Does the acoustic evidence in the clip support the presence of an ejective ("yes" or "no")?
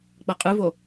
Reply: yes